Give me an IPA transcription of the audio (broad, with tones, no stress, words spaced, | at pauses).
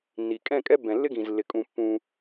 nːi˨ kʼɛ̃˦˨ kʼɛ˦ bɛ̃˨lːɪ˦ɡĩ˨zlːɪ˨ kʼũ˨ pːũ˦